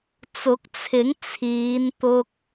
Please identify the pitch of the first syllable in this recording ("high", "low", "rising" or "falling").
rising